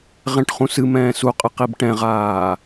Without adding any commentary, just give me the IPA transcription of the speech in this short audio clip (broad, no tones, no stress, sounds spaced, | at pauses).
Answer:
ʁ ɛ̃ ʈ χ ũ s ɨ m ɛ̃ː s u qʼ ɨ q i b ʈ ɛ̃ ʁ aː